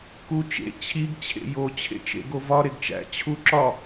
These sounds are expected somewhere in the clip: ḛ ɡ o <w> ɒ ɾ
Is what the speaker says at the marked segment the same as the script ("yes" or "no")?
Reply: no